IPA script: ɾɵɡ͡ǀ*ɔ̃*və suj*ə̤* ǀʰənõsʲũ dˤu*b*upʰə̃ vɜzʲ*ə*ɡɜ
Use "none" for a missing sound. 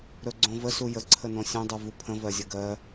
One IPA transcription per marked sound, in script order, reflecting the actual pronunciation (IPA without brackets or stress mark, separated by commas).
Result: õ, ə, v, ə